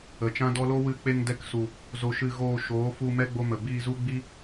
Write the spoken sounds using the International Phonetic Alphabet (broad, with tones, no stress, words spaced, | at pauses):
ə˨t͡ʃã˦dɔ˦ lo˦wɨ˧ k͡pe˧ŋ dɛ˧ksu˨ | zo˧ʃɨ˧ ɣoː˧ ʃoː˨˦fu˧ mɛ˦ɡ͡bo˧mə˨ biː˧zu˦ɡ͡bi˦